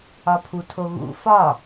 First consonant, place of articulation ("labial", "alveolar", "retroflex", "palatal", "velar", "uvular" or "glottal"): labial